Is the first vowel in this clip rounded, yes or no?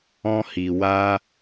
yes